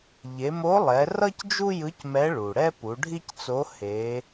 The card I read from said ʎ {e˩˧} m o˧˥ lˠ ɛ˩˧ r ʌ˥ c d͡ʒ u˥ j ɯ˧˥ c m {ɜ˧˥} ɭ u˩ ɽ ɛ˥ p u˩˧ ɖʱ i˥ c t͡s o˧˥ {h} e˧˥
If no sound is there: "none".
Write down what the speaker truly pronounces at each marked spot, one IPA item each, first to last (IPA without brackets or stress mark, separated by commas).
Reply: e˩˧, ɛ˧˥, h